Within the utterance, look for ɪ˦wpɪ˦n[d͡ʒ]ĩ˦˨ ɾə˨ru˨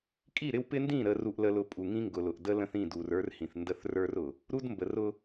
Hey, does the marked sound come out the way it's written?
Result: no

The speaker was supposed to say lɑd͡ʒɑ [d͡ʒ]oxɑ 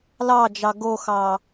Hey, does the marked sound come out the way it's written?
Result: no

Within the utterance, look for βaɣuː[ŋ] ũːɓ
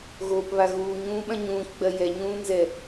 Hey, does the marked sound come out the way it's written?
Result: no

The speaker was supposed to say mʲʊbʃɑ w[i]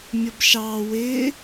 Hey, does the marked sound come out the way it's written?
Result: no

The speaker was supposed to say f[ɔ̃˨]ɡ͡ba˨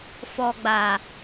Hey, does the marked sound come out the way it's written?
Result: no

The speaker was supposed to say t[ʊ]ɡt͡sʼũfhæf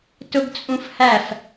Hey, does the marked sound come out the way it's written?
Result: yes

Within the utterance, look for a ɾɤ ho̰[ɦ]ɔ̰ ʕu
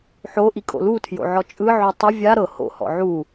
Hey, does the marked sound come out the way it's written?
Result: no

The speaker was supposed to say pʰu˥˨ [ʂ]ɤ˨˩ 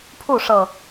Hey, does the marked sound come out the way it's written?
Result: yes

